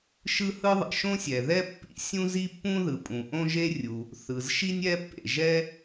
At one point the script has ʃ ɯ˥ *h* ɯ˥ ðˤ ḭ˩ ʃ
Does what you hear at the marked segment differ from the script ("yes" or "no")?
no